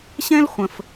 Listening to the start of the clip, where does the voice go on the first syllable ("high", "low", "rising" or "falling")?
high